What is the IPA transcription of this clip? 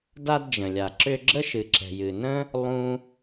d a˦ d d͡ʒ ə̃˨ lʲ a˨ ǁ ʏ˧ ɡ͡ǁ ə˦ ʃ ɨ˨ ǁ ɛ̤˨ j ɨ˨ n ə̃˦ | lˠ ũ˦

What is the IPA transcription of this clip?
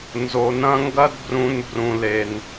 n z o˨ n ɐ̃˦ ŋ ɡ ɐ˦ d b r ũ˧ n b r ũ˨ l e˨ n

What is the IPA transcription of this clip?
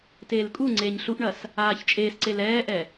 t eː l kʼ u ŋ͡ǀ eː ɲ ɬ u ʔ ɳ ɐ s | aː ç t͡ʃʼ eː s ǀ e l ɛː ʔ ɛ

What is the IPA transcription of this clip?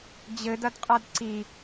d͡ʑ ɘ d ɐ d qʼ a d ǀ i

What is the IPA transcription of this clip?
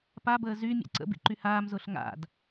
p a b əː z y mʲ a̰ ǀ ə̰ b ḭ ǃ y h aː m z ʊː ɬ ŋ a̰ d

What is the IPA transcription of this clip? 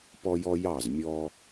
p ɔ˦ j ɔ˦ j ɑ˦˨ z mʲ ɔː˦

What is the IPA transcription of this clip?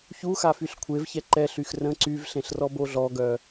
ç u x a f y ɬ kʷʰ e v ç ɛ ǃ ɛ ɬ y x r ə̃ ǀ y v ɬ ẽ ɬ r ɔ b o ɮ ɔ ɡ œ

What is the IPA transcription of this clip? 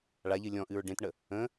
ɭ a ʎ ɨ lʲ ɔ̃ ʔ ɨ ɹ ɖ ẽ t ɳ ə | ə̃

